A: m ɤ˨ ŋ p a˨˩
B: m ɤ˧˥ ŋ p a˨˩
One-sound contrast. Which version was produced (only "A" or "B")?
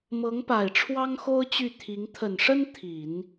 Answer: B